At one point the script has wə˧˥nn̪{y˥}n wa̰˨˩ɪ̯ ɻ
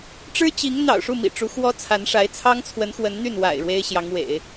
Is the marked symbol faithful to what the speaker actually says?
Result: no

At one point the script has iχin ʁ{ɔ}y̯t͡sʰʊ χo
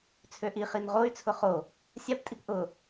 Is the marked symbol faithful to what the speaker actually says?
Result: no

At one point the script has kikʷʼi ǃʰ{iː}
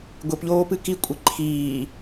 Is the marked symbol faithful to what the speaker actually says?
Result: yes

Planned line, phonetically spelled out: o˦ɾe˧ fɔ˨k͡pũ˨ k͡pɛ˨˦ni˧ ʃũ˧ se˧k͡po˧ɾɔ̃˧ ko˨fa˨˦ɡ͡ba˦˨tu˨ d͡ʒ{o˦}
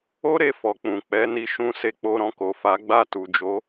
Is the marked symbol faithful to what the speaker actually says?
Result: no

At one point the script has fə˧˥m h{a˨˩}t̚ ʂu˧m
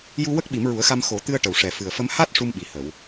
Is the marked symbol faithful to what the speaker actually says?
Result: no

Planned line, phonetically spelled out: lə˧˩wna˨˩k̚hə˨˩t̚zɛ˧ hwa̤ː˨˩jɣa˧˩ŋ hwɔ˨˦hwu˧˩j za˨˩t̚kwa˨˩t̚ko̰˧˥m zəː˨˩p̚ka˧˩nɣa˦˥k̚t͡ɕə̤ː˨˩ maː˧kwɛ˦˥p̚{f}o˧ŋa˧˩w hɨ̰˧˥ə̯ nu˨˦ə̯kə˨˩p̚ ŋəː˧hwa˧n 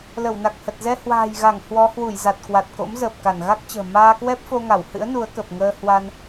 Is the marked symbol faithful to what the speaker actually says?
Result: yes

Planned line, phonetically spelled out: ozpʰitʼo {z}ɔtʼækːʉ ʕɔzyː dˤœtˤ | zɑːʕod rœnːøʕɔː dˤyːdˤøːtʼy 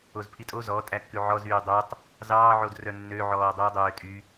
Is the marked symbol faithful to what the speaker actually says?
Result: yes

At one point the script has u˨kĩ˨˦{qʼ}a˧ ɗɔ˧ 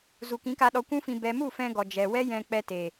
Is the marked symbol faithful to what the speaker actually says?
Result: no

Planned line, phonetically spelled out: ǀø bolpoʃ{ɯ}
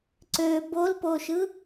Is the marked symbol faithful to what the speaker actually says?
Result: yes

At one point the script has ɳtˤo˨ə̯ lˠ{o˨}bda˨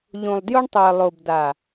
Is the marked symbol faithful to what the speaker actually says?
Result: yes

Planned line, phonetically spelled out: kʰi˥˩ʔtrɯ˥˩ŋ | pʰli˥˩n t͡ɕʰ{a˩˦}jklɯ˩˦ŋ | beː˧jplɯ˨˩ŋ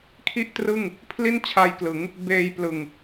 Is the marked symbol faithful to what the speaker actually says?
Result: no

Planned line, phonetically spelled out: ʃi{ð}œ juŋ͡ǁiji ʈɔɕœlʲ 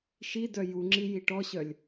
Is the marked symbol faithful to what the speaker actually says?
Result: no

